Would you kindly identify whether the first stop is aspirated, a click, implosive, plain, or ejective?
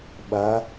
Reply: implosive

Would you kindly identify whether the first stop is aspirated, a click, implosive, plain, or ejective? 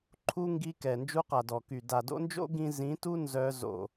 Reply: click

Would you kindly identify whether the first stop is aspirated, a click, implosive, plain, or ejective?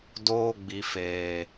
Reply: plain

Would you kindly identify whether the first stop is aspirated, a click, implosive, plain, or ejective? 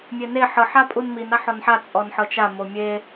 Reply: ejective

